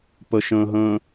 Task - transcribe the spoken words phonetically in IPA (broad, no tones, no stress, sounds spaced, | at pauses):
p ə ʃ ə̃ː ɦ ə̃ː